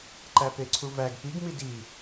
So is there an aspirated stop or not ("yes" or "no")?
yes